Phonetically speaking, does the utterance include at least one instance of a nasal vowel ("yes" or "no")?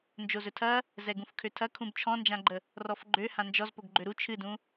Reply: yes